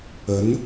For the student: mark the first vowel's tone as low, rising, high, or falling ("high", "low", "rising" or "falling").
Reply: rising